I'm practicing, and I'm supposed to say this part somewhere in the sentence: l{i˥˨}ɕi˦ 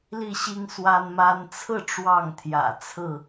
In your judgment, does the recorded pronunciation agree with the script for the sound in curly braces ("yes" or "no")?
yes